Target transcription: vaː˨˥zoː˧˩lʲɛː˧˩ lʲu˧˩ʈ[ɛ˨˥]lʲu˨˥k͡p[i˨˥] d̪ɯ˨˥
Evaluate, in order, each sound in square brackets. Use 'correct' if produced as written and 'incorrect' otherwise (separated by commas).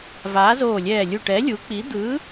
correct, correct